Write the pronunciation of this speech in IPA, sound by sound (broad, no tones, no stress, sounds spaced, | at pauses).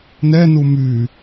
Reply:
n ɛ n u m y